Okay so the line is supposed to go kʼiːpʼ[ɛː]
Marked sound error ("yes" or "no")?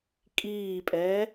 no